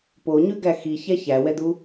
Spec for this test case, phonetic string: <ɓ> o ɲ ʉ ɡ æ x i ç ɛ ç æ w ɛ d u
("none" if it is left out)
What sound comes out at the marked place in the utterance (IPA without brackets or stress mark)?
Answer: p